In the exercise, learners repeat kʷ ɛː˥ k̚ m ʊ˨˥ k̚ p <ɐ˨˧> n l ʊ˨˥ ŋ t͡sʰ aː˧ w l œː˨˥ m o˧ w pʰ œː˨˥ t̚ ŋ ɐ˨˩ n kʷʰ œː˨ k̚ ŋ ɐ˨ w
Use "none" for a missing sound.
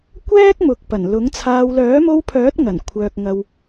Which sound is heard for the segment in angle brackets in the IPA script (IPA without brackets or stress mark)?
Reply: ɐ˨˩